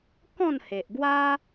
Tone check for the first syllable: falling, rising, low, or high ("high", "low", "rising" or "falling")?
falling